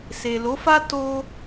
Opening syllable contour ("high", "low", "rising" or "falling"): low